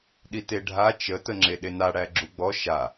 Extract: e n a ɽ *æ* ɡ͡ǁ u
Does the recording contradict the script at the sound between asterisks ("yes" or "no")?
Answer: no